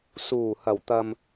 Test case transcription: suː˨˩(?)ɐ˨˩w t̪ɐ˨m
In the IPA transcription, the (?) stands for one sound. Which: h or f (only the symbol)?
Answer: h